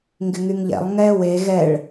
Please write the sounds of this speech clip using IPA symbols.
ŋ ɡ ɪ ŋ y ŋ ʎ ɛ̰ lˠ ŋ ɛ w e ɣ ɛ ɭ

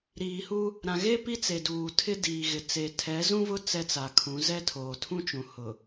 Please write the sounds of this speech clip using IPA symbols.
ɾ iː˨ h u˦ | ɾ ã˨ ɣ e˦ p i˦ t͡s e˨ d uː˨ tʰ ɪ˦ d iː˨ ɣ ɪ˨ t͡s e˨ tʰ ɛ˨˦ z ũ˦ v ʊ˦ t͡s ɛ˦ t͡s a˨ kʰ ũ˨˦ z ɛ˦ tʰ oː˨ tʰ ũ˦ t͡ʃ ũ˨ h ʊ˨

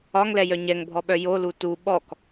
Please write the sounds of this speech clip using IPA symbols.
ɒ ŋ l ɛ j œ ɲ ɛ ŋ bʱ ɔ ɓ œ j o l u t u ɓ ɔ k

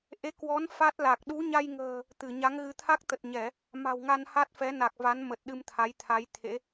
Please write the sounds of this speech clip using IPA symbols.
ʔ e˨˦ k w ɔ˨˦ n f a˦˥ t̚ l a˨˩ k̚ ɗ u˨˦ ɲ a˧ j ŋ ə̤ː˨˩ | t̪ ɨ˧˩ ɲ a˨˦ ŋ ɣ ɨ˨˦ t̪ʰ a˦˥ k̚ t̪ ə˨˩ t̚ ɲ ɛ˧˩˨ | m a̤˨˩ w ŋ a˧ n h a˦˥ t̚ f ɛ˨˦ n a˨˩ k̚ v a˨˦ n m ə˨˩ t̚ ɗ ɨ˧ m t̪ʰ a˨˦ j t̪ʰ a˨˦ j t̪ʰ ḛ˧˥

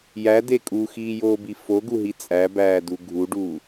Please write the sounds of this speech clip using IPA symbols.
j æ d e kʼ u x iː j oː b i f o ɡ u ɦ i t͡sʼ æ b æː d u ɡʱ u ɖ u

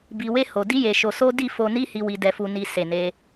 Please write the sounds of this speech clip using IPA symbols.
b i˧ w e˦ h o˧ d i˦ j e˧ ʃ o˧ s o˦ d i˦˨ f o˧ n i˦ h i˧ w i˧ d ɛ˧ f u˧ n i˧ s e˨ n e˧

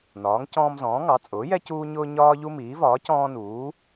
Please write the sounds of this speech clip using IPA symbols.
n ɒː˩˥ ŋ c ɔ̃ː˦ m z ɔ̃ː˩˥ ŋ ɑ˩˥ t͡sʼ ʊː˩˥ j ɛ˦ c uː˦ ɲ ʊː˦ ɲ ɒː˦ ʎ u˦ m iː˩˥ v ɒː˩˥ c ɔ̃ː˦ n uː˩˥

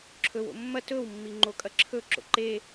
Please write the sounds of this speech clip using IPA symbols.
ǁʰ ɵ w o̰ mː ɐ t ɵ w mː i ŋ͡ǃ o kʼ ɐ ǁʰ ɵ ǁ o̰ ǃ e

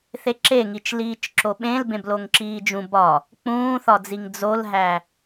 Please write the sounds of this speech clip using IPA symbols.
θ e ǁ e ŋ i t͡ʃ l iː t͡ʃ ǁ o ɓ ẽ l b ẽ b l o ŋ ǁ iː d͡ʒ ũ b ɒ | k͡p ũː θ ɒ d͡z i ŋ d͡z o l ɦ æ

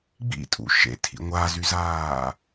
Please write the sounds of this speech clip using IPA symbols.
ɡ͡b ḭ tʼ ṵ ʃ ḛ tʰ ḭ ŋʷ a z y z aː

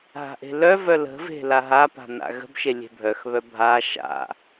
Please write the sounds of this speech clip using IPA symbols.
ɦ a̤ ʔ e̤ l œ v œ l ə̤ v e̤ l a ɦ a p a̤ n a̰ ɣ ə̤ b ʃ e lʲ e̤ bʱ œ x β œ bʱ a ʃ a̰

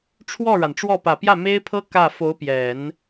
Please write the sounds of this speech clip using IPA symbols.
ʈ͡ʂʰ w ɔ˥˩ ɻ a˩ n ʈ͡ʂ w ɔ˥˩ p ä˨˩ p j ä˥˩ m e˥ ɪ̯ pʰ ɤ˥ k ä˥˩ f o˧˥ ʊ̯ p j ɛ˨˩˦ n

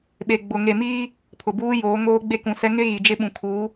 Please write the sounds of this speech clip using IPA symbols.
ɓ e˨ ɡ͡b ʊ˨ ŋ e˨ m iː˦ | pʰ ʊ˨ b uː˦ j oː˨˦ ŋ oː˦ ɡ͡b e˦ k ũ˨ s ɛ˦ ŋ ɪ˦ ɣ i˨ d͡ʒ ɪ˦ ɓ ũ˨ kʰ uː˨˦

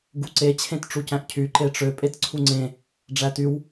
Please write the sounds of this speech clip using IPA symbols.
ɡ u ǀ e t͡ɕʰ ẽ t ʈ͡ʂ u c æ̃ ʔ cʰ y ǃ e ʈ͡ʂ ø pʼ e t ǀʰ u ŋ͡ǀ ẽ | ɖ͡ʐ æ t y w

